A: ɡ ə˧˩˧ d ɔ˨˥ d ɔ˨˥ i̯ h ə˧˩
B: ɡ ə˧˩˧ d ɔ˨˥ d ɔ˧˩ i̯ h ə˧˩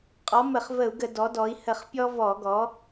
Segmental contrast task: A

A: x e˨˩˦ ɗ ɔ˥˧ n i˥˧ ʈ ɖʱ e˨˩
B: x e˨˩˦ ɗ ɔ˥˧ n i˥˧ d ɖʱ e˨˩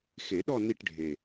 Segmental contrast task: A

